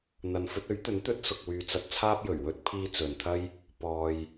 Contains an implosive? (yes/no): no